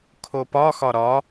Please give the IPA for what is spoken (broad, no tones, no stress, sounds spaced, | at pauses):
kʰ o p ɒ x ɒ ɾ ɒ